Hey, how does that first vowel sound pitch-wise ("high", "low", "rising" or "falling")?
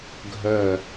low